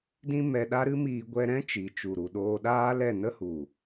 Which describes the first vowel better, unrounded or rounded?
unrounded